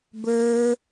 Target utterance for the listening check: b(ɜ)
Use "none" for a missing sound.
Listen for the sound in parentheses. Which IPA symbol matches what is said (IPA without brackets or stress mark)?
ə˞